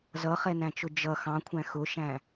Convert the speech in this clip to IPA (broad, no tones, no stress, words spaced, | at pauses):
zʌχɛnæ̃t͡ʃʊ d͡ʒʌ xɑ̃kʷʰæ̃ xʊʃæ̃